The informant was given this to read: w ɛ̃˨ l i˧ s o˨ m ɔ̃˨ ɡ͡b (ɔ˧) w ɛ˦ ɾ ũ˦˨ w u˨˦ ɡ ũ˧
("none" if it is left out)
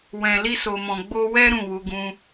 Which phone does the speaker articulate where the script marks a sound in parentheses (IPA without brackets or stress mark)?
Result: o˧